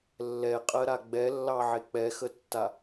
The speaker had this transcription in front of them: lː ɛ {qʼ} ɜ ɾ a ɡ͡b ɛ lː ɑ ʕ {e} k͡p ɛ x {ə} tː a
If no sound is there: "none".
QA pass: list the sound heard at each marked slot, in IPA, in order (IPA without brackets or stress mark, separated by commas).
qʼ, e, ə